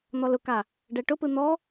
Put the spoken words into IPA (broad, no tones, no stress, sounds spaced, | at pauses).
n̪ ɔ l ʊ k a | ɖ ɛ ʈ ʊ p ɯ n̪ ɔ